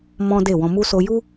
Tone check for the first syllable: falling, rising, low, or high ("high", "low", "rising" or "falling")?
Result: high